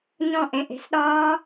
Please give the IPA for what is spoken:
ɲ ɔ̃˧˩ ʔ ẽ˩˧˩ ʔ e̤˧˩ s ɗ ɒː˦˥

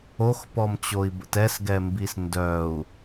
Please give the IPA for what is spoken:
o x p ɔ m t͡ɕ o i̯ b ə̰ t ɛ s ɡ ɛ m b i s n d œ u̯

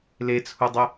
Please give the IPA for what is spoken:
l e t͡sʰ u dˤ ʊ

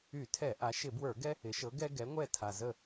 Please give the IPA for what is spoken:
y˧˩˧ tʰ ɛ˧˩˧ ʔ a˩˧ ʃ ɪ˧˩˧ b w ə˞˧˩˧ ɡ ɛ˦ | ɪ˩˥ ʃ ɤ˩˥ ɡ ɛ˦ ɡ ɛ˩˥ ŋʷ ɛ˥˩ tʰ a˨˩ z ə˥˩

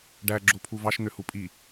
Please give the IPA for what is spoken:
ɖ æ ɡ͡ǁ o pʰ u v ɑ ʃ n̪ ø h u pʼ i

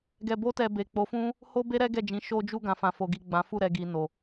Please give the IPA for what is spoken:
ɡ ɛ˧ b o˦ t ɛ˧ b e˨ k͡p o˨˦ f ũ˦ | h o˦ b e˦ ɾ ɛ˦ ɡ ɛ˦˨ d͡ʒ ĩ˨˦ ʃ o˧ d͡ʒ u˧ ɡ ã˨ f ã˨ f o˨ ɡ i˨ ɡ͡b ã˨˦ f u˦˨ ɾ ɛ˨ ɡ i˨ n o˨

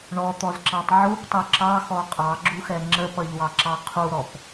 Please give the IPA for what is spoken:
ɳ ɔ t̪ ɔ z ǁ ɑ tˤ ʕ u p tˤ ə˞ ǁ ɑ x ɔ qʼ ɑ ɡ͡ǁ u x ɛ ŋ͡ǁ ə p ʌ ʎ w ɑ ǁ ɑ qʰ u ɾ ɔ p

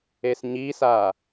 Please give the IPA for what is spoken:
e s ɲ i s a

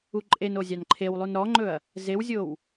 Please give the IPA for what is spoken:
u ǃʼ e n o zʲ ɑ n ǃʰ e w lˠ u n ɾ ɔ ŋ͡ǃ ɵ ɐ̯ | z e w zʲ o w

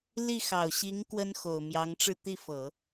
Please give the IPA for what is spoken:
l i˥˩ x ɑ˨˩ ʊ̯ ɕ i˧˥ ŋ k w ə˥ n x o˨˩ ʊ̯ m j ɑ˧˥ ŋ ʈ͡ʂ ɻ̩˥˧ t̪ i˥˩ f ɤ˨˩˦

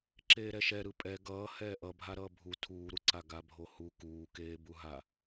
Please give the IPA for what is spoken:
ǁ eː ɾ ɛ ʃ ɛ ɾ ɯ pʼ ɛ ɡ ʌː h ɛː ʔ ʌ bʱ a ɾ ʌː bʱ u tʰ uː ɾ u ǀ a ɡ a bʱ o h u k uː k eː b u ɦ a

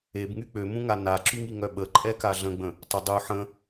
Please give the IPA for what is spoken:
e b ŋ y k͡p ø m ũ ŋ a n a ǁ y ŋ i ŋ œ ɓ ə ǃʼ ɛ k a ɮ ə̃ ɡ͡b ə̃ | tˤ ə dˤ u ħ ə̃

